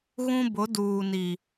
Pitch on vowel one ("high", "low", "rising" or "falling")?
high